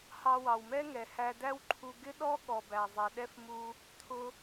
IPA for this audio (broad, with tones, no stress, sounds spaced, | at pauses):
h ɑ˧ w ɑ˩ w m ɛ˥ ŋ ɛ˩ h æ˧ d æ˥ w ǃʰ u˧ ɡ ɪ˥ ɗ ɔ˥ ɠ ɔ˩ b æ˩ zˤ ɛ˩ ɗ ɛ˥ f m u˧ | t̪ʰ ʊ˧